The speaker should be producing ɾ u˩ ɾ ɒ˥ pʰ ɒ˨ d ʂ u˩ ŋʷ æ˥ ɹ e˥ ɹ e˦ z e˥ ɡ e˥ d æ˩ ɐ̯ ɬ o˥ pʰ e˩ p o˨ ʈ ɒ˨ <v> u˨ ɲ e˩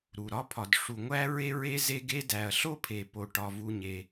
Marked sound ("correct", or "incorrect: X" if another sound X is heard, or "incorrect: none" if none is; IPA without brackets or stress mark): correct